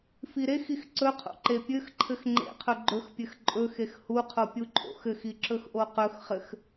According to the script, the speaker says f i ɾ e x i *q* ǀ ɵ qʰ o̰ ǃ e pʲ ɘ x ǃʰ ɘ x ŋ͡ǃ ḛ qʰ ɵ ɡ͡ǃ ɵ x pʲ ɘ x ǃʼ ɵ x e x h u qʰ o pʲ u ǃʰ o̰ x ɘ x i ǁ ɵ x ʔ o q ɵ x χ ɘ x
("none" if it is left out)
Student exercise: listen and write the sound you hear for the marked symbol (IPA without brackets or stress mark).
x